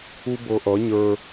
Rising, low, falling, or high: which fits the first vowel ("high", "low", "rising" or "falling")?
high